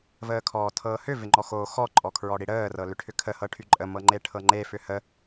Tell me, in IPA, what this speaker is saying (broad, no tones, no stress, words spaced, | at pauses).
vəːkʰɔːtʰɤːhʏ vɪŋ͡ǃɔxoːxɔ ǃʼɔkʰɹɔɽiɽəː rɤlʏʈʰʏkʰə hɤʈʰyǃʼə mɤŋ͡ǃeʈʰɤŋ͡ǃe fʏhə